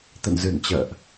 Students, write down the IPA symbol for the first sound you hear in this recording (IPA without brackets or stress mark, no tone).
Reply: t̪